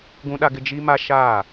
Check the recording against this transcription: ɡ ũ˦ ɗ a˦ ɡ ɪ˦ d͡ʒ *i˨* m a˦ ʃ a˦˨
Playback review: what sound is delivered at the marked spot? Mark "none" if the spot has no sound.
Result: i˦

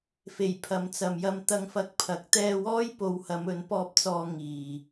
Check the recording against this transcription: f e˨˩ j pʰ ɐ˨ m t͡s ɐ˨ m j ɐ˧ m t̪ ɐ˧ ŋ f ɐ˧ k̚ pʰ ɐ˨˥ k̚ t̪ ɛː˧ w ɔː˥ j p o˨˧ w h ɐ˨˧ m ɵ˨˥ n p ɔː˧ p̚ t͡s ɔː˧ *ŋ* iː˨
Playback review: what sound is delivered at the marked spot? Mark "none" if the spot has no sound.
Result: ŋ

